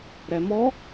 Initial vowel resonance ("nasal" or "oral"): oral